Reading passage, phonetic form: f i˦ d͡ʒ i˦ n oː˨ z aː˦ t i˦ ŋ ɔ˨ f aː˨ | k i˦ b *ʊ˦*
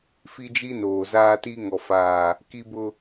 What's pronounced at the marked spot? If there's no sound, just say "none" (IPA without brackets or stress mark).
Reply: ʊ˦